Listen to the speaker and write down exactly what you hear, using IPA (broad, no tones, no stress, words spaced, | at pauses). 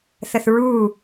θəθɹuː